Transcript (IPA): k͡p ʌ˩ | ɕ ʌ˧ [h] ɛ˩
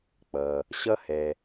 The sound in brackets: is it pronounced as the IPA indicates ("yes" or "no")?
yes